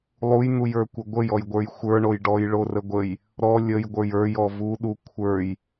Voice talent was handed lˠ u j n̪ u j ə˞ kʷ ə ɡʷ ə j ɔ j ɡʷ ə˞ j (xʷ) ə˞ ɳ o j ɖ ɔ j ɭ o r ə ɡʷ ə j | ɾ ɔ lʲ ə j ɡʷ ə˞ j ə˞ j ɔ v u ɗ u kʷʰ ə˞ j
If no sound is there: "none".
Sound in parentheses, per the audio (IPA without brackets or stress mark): xʷ